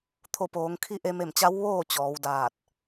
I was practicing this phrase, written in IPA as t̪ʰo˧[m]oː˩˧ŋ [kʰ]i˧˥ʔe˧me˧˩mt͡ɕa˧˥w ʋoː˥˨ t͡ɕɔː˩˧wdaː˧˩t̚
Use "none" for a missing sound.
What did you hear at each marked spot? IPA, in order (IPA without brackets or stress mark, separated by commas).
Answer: p, kʰ